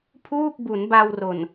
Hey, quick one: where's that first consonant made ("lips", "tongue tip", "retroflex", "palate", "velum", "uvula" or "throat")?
lips